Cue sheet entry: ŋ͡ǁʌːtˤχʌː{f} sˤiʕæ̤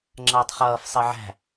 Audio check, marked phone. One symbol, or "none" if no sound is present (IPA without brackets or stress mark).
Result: f